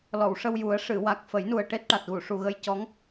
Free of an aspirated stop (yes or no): yes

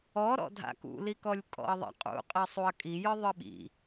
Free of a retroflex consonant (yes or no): yes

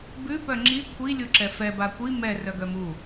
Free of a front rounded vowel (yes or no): no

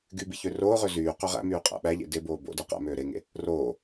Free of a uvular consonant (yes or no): no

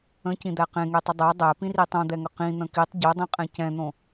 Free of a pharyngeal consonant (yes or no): yes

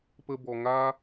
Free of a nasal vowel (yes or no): yes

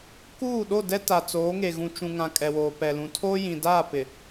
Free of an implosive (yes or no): no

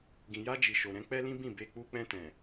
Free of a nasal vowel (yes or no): no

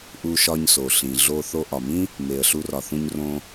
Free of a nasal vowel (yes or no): no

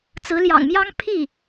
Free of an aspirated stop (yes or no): no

